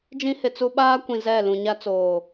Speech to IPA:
d͡ʒ ĩ˦ h ɪ˨ t͡s u˦ ɓ aː˦ kʷ ĩ˨ z ɛ˦˨ l ũ˨ ɲ a˦ t͡s oː˨

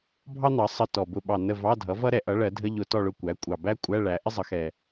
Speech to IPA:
bʱ ɑ˥ n̪ ɑ˩˥ sˤ ə˧˥˧ t ɔ˨˩ b ʊ˧˥˧ ɓ ɑ˦˨ n ə˦˨ v ɑ˧˥˧ dʱ ʌ˩˥ v ʌ˥ ɾ ɛ˧˩˧ ʔ ʌ˩˥ ɭ ɜ˩˥ dʱ ə˧˥˧ ʎ ʊ˧˩˧ t ɔ˦˨ ɭ ʊ˦˨ kʷ æ˩˥ kʷʼ ɑ˨˩ b æ˥ kʷʼ æ˧˥˧ ɭ æ˩˥ ʔ ɪ˥ zˤ ʌ˩˥ x ɛ˨˩

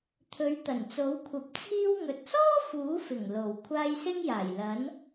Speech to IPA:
t̪ʰ ɵ˨˥ ɥ t̪ ɐ˨˩ n t͡s o˨˥ w kʷʰ ɐ˨˥ p̚ t͡sʰ iː˥ w ŋ ɵ˨ t̚ s ɔː˥ f uː˨˥ f ɪ˨˩ ŋ l o˨˩ w kʷʰ aː˧ j s ɪ˥ ŋ j aː˨˩ j l ɐ˨˥ n

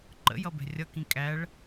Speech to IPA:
ǃ ə̰ j ʌ b ɛ̤ rʲ ʌ k ĩ kʼ æ ɭ

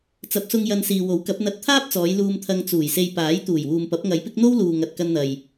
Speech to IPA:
t͡s ɐ˨˥ p̚ s ʊ˧ ŋ j ɐ˧ n s iː˨ w o˨˥ w k ɐ˨˥ p̚ n̪ ɐ˧ t̚ t̪ʰ aː˥ p̚ t͡s ɔː˨˧ j l uː˧ m t̪ʰ ɐ˧ ŋ t͡s uː˨˩ j s e˧ j p aː˨˥ j t̪ uː˨˩ j w uː˨ m p ɐ˨˥ p̚ ŋ ɐ˨˧ j p ɪ˥ k̚ n̪ o˥ w l uː˨ ŋ ɐ˨ t̚ k ɐ˧ n n̪ ɐ˨ j

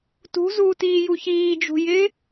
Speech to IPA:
t ṳ z uː t iː j u ç iː d͡ʒ ṳ j ɪ

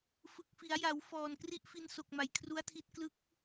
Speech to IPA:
f ɯ˨˩ k̚ f i˩˦ a̯ j a˩˦ w f ɔː˨˩ n k r i˥˩ ʔ f i˧ n s o˨˩ k̚ m a˩˦ j kʰ r u˦˥ a̯ tʰ i˦˥ t̚ k l ɯ˦˥ k̚

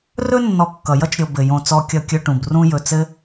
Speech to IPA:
r ɵ˥ nː ɔ˨ kː ʌ˩ j ʌ˥ t͡ʃ ɾʲ o˨ b ɘ˩ j õ˨ t͡s ɔ˨ kʲ ʌ˨ kʲ ɵ˨ ʈ ũ˩ b r ũ˦ j ɵ˨ t͡s ɘ˥

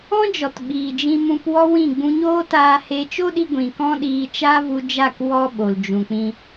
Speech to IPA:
ɔ̃˦ d͡ʒ ɔ˨ t ɓ iː˨ d͡ʒ ĩ˧ m ũ˧ p w ɔ˦ w ĩ˦˨ ɡ͡b ũ˧ ɲ oː˦ t aː˧ h e˧ t͡ʃ o˦ ɗ i˧ ɡʷ ĩ˨ k ɔ̃˦ ɗ iː˧ t͡ʃ aː˦ v u˧ d͡ʒ a˦˨ k w ɔ˦ ɓ o˨ l d͡ʒ ũ˨ k͡p ĩ˧

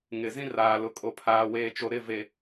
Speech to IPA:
ŋ ɪ˨ z ĩ˦ r aː˨ l ʊ˨ kʼ o˨ pʰ aː˨ w eː˨ t͡ʃ o˨ ɾ ɪ˦˨ v e˨

